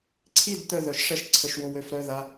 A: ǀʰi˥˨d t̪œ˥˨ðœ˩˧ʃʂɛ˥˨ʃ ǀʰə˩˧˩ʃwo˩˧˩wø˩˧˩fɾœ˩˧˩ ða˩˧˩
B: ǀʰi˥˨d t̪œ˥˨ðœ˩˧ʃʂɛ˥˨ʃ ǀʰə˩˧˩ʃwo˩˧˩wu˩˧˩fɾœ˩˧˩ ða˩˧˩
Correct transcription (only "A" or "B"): A